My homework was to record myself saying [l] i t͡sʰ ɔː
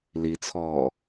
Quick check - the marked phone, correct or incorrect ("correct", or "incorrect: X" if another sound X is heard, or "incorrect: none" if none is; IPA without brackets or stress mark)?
correct